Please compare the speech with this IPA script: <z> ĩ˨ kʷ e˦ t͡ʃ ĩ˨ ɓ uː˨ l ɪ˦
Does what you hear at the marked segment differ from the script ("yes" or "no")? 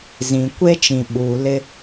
no